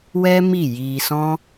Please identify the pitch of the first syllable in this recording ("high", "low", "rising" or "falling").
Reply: high